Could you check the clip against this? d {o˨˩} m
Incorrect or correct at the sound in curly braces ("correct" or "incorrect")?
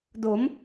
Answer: incorrect